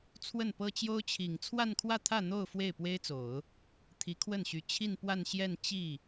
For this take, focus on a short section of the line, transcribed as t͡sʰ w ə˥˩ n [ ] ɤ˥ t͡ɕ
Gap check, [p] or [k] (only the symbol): p